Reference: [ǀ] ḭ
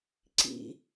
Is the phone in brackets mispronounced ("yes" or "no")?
no